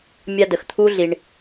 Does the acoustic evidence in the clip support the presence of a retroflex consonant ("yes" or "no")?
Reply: yes